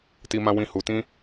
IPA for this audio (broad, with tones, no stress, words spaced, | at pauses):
ti˧mã˧wĩ˧ hu˧tĩ˦